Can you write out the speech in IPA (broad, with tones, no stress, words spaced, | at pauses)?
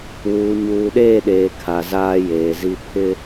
wuː˨ ɲuː˨ɗeː˦˨ɗeː˨ kʰa˨zaː˦jeː˨zi˦ pʰɪ˦